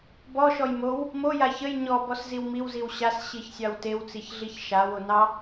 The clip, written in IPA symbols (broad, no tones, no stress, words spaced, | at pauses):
bɔʃɔj mow | moja çəj ɲɔbɔsziw miwziw ɕasɕiçsʲɑw tewt͡siçɮiç ʃawo nɑ